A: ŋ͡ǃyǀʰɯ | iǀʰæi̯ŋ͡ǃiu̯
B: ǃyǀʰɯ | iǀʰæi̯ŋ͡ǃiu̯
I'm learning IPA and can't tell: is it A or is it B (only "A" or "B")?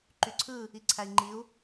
B